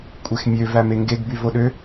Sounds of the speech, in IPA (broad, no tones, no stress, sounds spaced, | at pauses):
kʷʼ e x mʲ ø v æ m e ŋ ɡ e ɡ b y v o ɗ ø